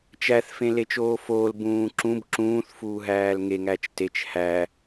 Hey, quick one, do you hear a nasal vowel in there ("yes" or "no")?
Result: yes